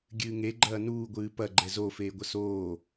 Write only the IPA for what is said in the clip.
ɡʲɨːŋeɡ͡ǃɐː nuːɡʷɨː pɐ ɡ͡ǃɛzofeːɡʷɐ soː

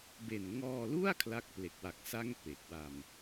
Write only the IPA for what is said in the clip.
be˨˩n ŋɔː˧lu˥˩a̯ kʰla˦˥k̚ple˨˩k̚wa˨˩k̚sa˥˩ŋ pe˨˩k̚ wa˧m

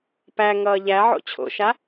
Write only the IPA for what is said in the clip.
pæ ŋʌːʎæʕo̰ t͡ɕʰo̰ʃa

